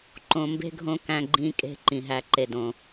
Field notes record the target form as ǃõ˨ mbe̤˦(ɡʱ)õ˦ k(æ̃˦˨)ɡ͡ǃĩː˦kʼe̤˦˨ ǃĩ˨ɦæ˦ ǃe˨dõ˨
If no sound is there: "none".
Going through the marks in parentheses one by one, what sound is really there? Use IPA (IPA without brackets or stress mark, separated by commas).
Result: ɡʱ, æ̃˦